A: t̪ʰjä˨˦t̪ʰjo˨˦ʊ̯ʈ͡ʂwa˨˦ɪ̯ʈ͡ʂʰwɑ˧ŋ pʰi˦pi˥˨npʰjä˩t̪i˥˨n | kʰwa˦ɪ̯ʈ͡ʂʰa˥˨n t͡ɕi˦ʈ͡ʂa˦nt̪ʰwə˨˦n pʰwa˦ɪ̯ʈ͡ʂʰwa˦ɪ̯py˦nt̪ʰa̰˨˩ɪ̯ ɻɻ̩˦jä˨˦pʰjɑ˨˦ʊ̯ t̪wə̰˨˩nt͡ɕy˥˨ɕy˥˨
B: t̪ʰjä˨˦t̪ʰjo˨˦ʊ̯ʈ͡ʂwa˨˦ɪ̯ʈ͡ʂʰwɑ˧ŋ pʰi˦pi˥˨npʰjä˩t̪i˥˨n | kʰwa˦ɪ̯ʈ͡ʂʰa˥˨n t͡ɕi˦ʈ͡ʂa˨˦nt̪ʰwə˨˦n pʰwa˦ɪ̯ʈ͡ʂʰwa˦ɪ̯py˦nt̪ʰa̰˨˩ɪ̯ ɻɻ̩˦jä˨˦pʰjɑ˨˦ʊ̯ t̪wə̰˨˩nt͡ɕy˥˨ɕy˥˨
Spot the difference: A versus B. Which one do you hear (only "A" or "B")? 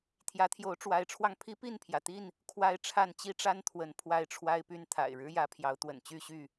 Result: A